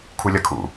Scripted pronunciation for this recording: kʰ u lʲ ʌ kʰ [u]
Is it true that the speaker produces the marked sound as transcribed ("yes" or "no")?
no